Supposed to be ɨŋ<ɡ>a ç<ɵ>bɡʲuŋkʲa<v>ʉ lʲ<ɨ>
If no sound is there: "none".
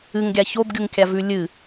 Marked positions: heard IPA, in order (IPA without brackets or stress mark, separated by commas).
ɡʲ, o, v, ɨ